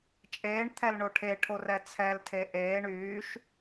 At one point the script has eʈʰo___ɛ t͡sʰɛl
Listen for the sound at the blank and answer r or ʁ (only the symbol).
r